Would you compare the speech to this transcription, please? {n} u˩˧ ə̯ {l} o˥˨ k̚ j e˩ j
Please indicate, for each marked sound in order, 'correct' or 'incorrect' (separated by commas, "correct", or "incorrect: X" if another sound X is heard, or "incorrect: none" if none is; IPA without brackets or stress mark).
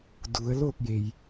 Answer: incorrect: d, correct